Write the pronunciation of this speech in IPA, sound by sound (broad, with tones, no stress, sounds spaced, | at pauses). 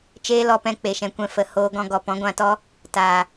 t͡ʃ eː˦ l ɔ˧ p ɛ̃˧ k͡p e˨ ʃ ɛ̃˨ kʷ ɛ̃˧ f ə˨ h oː˧ ɡ ɔ̃˧ ɡ ɔ˨ p ɔ̃˨˦ ɡʷ ã˧ t ɔ˦ | t aː˨